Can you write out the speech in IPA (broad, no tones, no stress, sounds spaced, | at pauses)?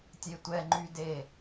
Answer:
tʲ e tʷ ɛ ŋ͡ǃ y d e